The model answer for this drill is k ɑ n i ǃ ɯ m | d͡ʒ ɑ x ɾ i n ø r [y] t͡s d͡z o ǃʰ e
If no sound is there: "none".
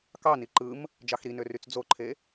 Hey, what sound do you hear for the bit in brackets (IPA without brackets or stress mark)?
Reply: y